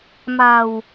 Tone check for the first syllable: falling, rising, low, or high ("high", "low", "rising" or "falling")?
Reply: low